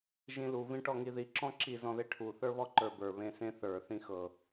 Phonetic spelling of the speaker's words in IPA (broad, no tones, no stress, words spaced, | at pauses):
ʒĩlu vĩʈɔŋiði ǁɔ̃ǁi zɔ̃ðeʈʰu θə˞βɔǃə˞bə˞ βẽsẽθə˞ θĩxɤ